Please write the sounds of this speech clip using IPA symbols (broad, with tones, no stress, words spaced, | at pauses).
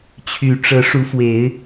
t͡ɕʰy˨˩ʈ͡ʂɤ˨˦ʂu˨˦fwe˨˦ɪ̯